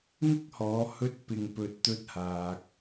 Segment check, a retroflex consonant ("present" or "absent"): absent